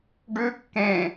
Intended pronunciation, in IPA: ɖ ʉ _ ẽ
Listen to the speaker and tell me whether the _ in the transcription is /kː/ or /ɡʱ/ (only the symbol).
kː